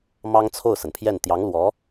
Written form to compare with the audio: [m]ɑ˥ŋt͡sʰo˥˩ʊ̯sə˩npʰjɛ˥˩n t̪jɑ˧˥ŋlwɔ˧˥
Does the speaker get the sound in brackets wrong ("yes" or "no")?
no